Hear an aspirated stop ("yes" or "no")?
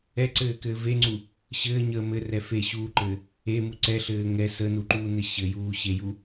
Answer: no